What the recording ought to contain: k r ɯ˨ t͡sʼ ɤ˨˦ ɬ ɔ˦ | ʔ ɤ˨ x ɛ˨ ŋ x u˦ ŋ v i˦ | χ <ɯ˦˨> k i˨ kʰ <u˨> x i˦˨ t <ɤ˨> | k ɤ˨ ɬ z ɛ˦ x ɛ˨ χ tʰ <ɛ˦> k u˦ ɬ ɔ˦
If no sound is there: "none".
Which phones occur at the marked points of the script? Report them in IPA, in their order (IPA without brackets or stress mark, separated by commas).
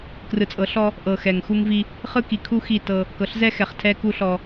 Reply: ɯ˦, u˦, ɤ˦, ɛ˦